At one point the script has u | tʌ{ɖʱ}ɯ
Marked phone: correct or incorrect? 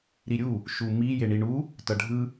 correct